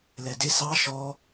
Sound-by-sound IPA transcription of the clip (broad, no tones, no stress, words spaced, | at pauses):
lɛdɪ sɑ ʃɔ